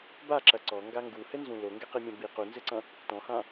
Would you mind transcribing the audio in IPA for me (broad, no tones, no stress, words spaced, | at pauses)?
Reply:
baǁɐ ǀɔŋɡa ŋɡuhɘnzũ loŋɡɛqimʲɐ̃ bi qunzɘǀɐ̃ | tɔ̃hã